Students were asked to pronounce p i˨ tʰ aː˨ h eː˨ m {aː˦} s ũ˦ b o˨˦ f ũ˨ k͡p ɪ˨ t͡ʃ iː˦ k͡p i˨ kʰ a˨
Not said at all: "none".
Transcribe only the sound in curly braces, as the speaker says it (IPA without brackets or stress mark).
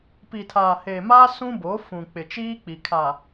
aː˦